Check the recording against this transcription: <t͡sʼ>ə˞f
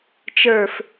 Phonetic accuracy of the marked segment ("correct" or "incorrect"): incorrect